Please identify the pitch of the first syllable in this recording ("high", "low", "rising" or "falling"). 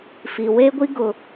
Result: low